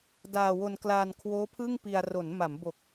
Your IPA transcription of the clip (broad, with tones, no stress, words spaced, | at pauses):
daː˧wo˧n klaː˧nkʰwoː˦˥ pʰɯ˥˩ŋpi˧a̯ ro˩˦nma˩˦mbo˨˩k̚